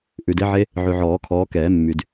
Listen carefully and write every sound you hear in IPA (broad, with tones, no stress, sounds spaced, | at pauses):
ʔ ʉ˨ d e˦˥ ʕ e˦˥ | ʕ ʉ˨ ʕ ɔː˨˩˦ kʰ ɔː˨˦ k ɛː˨˩˦ mː y˨ d